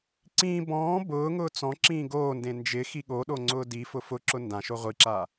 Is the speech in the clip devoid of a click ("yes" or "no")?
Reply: no